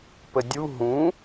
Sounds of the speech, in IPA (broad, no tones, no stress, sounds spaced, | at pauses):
p ə dʲ u ɦ ũ